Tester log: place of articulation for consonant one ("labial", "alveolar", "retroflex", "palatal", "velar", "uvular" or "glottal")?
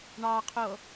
retroflex